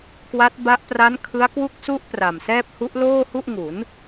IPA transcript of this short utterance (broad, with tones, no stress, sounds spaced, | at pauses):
k w a˦˥ t̚ b a˦˥ ʔ p r a˦˥ n kʰ ɯ˦˥ a̯ k w u˦˥ k̚ s u˦˥ ʔ p r a˨˩ m s ɛː˥˩ p̚ h u˦˥ ʔ l oː˥˩ h u˥˩ ʔ ŋ u˩˦ n